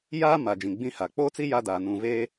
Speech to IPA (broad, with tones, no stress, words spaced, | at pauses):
jaː˦ ma˨d͡ʒĩ˨ɡ͡bĩ˦ha˨ k͡poː˦t͡si˦ ja˦daː˨ nũ˨veː˦